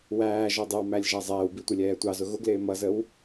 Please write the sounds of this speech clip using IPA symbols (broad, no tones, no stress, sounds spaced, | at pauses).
w æː ʒ ɔ dˤ ɪ w m æ lʲ ʒ æ zˤ ɛː w b i tʷ ɪ lʲ ɛː tʷ ɑ z ʊ ɣ ʊ ɡ l ɪː m ʌ z ə w